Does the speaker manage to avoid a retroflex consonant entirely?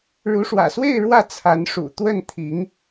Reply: no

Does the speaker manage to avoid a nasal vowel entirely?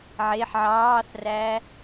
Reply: yes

